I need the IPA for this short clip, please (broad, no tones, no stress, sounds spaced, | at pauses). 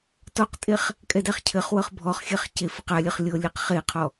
t ɔ q tʼ e χ | kʼ ɛ d æ χ cʰ ɘ χ w ɤ χ bʱ ɔ χ xʲ ɛ χ c e f ɘ q a lʲ ɘ χ lʲ ɤ lʲ ɘ q χ e qʰ ɔ